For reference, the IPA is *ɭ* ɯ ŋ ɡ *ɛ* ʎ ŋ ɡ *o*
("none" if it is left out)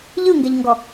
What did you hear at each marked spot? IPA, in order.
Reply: ʎ, ɛ, ɔ

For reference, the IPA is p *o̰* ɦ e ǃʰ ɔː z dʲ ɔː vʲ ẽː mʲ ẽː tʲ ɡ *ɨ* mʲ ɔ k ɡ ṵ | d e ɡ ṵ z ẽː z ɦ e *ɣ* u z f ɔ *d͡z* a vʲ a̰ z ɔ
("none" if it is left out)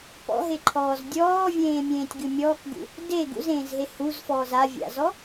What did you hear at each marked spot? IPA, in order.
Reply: ɔ̰, ɨ, h, z

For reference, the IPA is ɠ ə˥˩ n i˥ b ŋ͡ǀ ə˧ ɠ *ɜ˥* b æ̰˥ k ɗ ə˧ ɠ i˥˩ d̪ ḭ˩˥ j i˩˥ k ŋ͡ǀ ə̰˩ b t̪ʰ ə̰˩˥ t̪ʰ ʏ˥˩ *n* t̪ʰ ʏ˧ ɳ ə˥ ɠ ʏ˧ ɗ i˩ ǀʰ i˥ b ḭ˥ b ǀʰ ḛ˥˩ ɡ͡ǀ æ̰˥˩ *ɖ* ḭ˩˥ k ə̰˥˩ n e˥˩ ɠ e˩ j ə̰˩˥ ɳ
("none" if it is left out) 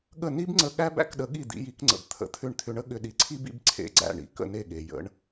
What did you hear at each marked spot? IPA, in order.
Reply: æ˥, ɳ, ɳ

